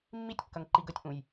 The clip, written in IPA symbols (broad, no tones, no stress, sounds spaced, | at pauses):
mː i tʲ kː ɐ ŋ ǃ i ɡ ə tʲ ʔ ũ j